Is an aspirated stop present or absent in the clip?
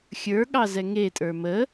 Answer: absent